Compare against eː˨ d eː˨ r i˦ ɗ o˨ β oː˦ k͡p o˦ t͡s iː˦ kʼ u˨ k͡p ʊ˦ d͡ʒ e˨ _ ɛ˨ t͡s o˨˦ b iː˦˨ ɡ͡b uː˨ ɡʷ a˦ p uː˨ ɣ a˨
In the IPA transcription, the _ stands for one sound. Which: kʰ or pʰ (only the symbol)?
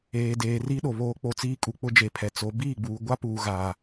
pʰ